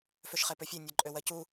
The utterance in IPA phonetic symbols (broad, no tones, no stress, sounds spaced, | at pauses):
f ø ʃ χ e p ø fʲ e nʲ ɜ ǃʼ ø w ɜ c u